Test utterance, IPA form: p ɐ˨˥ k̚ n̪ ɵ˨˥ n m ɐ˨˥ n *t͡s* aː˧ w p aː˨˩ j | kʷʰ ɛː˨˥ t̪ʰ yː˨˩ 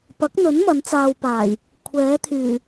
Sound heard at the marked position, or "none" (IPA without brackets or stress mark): t͡s